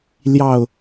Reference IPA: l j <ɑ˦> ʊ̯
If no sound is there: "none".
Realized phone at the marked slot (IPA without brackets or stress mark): ɑ˨˩